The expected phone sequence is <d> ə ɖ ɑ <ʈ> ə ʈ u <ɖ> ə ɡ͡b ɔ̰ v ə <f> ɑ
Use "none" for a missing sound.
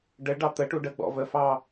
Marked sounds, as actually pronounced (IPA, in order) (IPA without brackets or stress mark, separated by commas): ɖ, t̪, ɖ, f